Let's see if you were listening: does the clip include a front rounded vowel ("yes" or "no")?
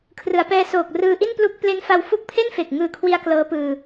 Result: no